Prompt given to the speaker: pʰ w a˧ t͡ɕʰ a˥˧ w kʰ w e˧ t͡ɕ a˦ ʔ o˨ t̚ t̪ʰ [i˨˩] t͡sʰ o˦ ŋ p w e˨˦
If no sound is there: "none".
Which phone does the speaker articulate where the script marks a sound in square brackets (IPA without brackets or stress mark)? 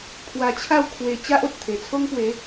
e˨˩